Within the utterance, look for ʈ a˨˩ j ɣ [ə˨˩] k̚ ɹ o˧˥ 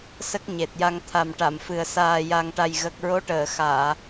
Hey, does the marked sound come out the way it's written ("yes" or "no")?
yes